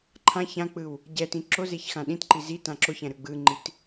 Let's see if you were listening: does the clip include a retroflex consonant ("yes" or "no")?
no